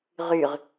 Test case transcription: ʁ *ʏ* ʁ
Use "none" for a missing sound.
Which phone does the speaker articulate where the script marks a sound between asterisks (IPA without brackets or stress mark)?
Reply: y